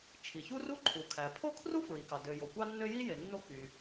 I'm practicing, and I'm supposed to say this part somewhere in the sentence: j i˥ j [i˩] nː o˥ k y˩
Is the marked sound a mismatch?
yes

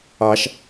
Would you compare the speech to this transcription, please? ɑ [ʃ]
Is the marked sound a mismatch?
no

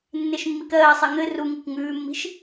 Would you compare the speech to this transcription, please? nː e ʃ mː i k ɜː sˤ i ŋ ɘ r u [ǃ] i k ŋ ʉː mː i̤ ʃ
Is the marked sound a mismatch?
yes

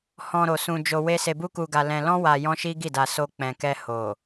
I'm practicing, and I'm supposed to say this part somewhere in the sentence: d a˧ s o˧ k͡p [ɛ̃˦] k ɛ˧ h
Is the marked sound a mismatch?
yes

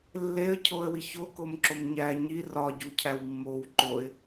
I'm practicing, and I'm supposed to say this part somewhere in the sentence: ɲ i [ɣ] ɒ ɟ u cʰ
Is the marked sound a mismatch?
yes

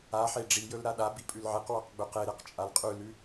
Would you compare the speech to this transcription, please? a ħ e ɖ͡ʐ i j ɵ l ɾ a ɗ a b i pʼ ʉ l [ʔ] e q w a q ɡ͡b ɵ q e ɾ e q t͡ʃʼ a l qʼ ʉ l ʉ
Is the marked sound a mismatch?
yes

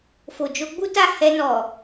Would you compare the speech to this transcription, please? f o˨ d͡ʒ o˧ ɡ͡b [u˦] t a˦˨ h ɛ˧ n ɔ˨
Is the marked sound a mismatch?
no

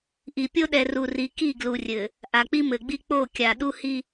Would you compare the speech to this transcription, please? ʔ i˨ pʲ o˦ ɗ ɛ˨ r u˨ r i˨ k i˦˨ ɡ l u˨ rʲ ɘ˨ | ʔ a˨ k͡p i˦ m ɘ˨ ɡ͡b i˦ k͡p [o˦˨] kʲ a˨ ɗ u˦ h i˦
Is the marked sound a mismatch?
no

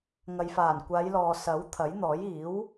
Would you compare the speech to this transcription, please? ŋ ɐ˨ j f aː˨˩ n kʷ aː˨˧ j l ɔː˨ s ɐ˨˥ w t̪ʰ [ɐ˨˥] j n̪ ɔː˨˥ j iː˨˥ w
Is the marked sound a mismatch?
no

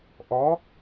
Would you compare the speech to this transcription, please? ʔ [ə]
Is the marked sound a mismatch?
yes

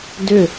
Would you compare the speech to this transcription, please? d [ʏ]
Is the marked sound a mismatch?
no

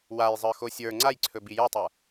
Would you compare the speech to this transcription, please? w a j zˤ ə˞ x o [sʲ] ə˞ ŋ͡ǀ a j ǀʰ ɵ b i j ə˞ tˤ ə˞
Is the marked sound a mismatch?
no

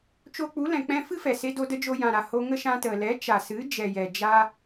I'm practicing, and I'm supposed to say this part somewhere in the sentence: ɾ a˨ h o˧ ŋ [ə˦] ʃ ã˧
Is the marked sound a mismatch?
no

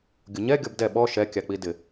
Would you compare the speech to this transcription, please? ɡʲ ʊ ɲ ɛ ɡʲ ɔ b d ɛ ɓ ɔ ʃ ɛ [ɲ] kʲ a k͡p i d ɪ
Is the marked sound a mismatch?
yes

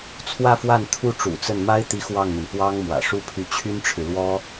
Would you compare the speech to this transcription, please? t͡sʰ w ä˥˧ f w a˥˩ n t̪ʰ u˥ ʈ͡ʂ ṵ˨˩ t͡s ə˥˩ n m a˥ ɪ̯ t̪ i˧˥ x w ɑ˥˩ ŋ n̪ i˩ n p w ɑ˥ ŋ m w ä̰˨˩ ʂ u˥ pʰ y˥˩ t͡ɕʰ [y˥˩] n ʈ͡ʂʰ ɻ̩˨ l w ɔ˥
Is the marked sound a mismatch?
yes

